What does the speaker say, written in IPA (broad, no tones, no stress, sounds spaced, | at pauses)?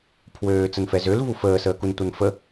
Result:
pʰ w øː t͡s ə n f ɛ z ø l v u f əː s əː k u n tʷ ʌ n f ə